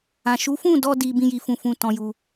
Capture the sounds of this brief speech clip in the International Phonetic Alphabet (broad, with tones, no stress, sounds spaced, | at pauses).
ã˨ ʃ u˨˦ f ũ˦˨ d ɔ˧ d i˧ b ĩ˦ j i˧ f ũ˧ f ũ˧ t ɔ̃˧ j u˧